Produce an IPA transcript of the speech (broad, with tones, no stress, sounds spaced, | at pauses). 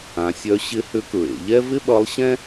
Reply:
ã˩˧ sʲ œ˧˥ ɕ ɪ˧˥ h ʏ˧˥ k ɹ ḛ˩˧ ʎ ɛ˥ v ɪ˥ ɓ ʌ˧˥ lˠ ɕ ɛ̃˥